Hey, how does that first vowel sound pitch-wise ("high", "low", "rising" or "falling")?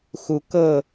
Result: rising